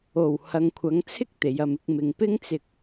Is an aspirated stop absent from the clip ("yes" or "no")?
no